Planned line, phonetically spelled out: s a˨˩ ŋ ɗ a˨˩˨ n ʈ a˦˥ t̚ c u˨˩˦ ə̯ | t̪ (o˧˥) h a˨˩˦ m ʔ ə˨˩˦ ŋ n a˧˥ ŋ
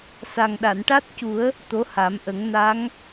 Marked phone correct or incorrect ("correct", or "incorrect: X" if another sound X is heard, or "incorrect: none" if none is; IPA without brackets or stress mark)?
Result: correct